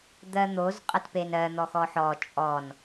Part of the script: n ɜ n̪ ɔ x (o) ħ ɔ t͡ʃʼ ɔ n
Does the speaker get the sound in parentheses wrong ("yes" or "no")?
yes